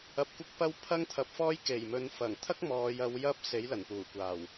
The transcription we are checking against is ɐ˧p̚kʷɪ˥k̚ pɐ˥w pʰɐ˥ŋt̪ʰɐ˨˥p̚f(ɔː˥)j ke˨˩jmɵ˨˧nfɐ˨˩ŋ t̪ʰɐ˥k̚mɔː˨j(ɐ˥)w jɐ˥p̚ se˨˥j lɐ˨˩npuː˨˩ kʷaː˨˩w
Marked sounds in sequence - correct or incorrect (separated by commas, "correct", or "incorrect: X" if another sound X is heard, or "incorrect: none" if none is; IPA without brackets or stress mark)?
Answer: correct, incorrect: ɐ˨˧